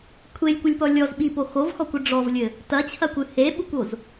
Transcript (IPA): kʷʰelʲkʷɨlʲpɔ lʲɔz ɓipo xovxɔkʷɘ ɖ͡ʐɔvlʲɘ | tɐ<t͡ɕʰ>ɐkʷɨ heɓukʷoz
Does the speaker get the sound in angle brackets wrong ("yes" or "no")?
no